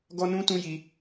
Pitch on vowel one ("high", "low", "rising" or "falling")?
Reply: high